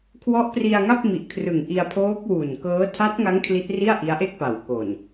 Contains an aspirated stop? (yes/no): yes